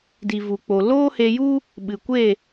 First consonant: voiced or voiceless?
voiced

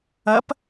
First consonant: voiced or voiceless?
voiceless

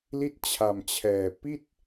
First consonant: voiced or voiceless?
voiced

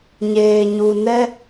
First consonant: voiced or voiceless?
voiced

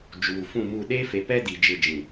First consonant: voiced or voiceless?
voiced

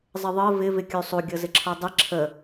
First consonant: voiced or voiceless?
voiced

